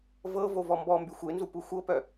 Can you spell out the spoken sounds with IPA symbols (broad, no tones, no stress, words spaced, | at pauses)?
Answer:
vɤ vovɔmbɔmby xʷenzu puxʷɤpœ